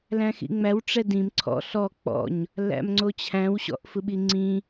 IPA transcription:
læ̃xḭŋ͡mæw ʈ͡ʂɛdĩm ǀʰɔ̰ ɬɔ k͡pɔ̰ɲ | læ̰mŋ͡ǀot͡ɕʰæ̃w ɕɔ̰ʔfɯɓiŋ͡ǀĩ

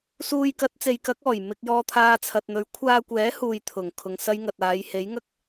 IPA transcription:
suː˧jkɐ˨˥t̚t͡se˨˧jkɐ˨˥k̚ ɔː˨˩jmɪ˧k̚jɔː˧t̪ʰaː˧ t͡sʰɐ˨t̚n̪ɵ˨˥ɥ kʷʰaː˧kʷɛː˨˥huː˨j t̪ʰʊ˨˩ŋ kʰʊ˨ŋsɐ˥jŋɐ˨t̚ aː˨˧jhe˨˥jŋɐ˥k̚

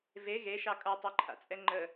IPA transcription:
ve ɣeʃɑ kʼʌtˤeǃʰa̰t͡sʼɛ ŋ͡ǃə

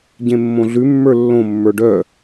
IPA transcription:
ɟẽmːõɮʉ mːə˞lːõ mːə˞ɖœ

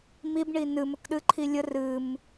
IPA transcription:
mib ɳinɨ məkɗɨǃʰilʲə rɨm

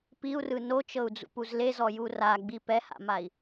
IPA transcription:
piu̯rɯ not͡ʃɤu̯d͡zṵpuz lezɔju raɡ͡bi pɛha̰mai̯

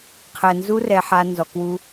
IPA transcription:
qʰɛ˨nzu˧ rɛ˧ħa˧nzɔ˨kwu˧

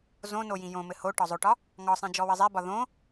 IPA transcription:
zõno jĩjõmɘ ho ʈɒzˤoʈɒ | ŋɒsˤĩ d͡ʒɔwɘzˤebɒ ðõ

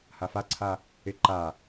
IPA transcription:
hafaǀʰa | ɪ ǃa

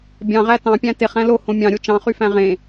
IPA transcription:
bʲɑ̃ʁæ tɑ̃pʲæ̃ teχæ̃ lohõ mʲɑ̃ ɾʲot͡ʃɑ̃χyfæ̃ ʁẽ

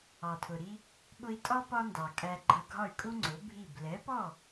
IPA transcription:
ɑ˩tʰʊ˩ɾi˧ | ɓʊ˧i̯tʼɒ˥ pɒ˥ndɑ˩kʼæ˧ɡ͡ǃʌ˧ ɡʱɒ˥˩y̯kʼu˥ŋ͡ǀʊ˩˥ bʱi˥˩b lɛ˩˥pɔ˥˩

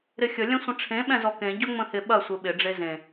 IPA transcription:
ɾɪxʲə lʲɐ̃sʷə̃ʈ͡ʂʰẽ ɓɛ̃zɔkẽ ɟɵŋ͡mə̃hɪ ɓɐ sʷɘɓɪ ɖ͡ʐezẽ

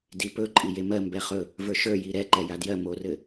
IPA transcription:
dipɵ ǃʼijemɜ mbɛχɵ | və˞ʃə˞ jiɾɛ ǃɛjadjɜ morɘ

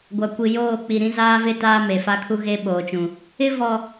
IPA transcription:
ɡʷa˨kʷi˨joː˦˨k͡pi˨ ɾĩ˦zaː˦vɪ˦ taː˦me˨fa˦kʰu˦ ɣe˦ɓoː˨t͡ʃũ˨ | ɪ˦vɔ˨

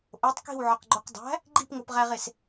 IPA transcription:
ʔotˤ ki̤wʕɒqɡ͡ǃoq dˤæ̤ | ɡ͡ǃipŋopʁæʁes

